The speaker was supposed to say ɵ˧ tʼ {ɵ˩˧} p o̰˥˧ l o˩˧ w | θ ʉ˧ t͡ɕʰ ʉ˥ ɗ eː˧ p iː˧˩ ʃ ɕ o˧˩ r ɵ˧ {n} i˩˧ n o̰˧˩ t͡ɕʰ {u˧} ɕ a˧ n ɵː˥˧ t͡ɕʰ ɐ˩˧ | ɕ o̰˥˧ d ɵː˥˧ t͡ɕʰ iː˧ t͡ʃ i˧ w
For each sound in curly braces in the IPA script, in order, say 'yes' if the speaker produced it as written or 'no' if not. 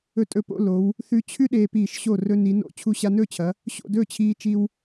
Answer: no, yes, yes

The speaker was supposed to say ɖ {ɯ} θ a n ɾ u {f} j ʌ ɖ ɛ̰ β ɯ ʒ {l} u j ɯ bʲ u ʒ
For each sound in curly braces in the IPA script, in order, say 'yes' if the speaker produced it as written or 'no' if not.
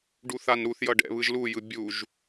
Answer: no, no, yes

